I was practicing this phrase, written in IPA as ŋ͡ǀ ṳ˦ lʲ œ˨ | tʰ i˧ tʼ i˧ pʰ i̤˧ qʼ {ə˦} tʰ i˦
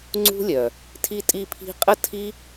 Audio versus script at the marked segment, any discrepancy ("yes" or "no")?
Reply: no